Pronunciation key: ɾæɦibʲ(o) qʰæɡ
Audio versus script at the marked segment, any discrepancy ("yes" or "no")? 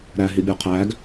no